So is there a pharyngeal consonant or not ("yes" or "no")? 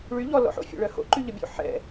yes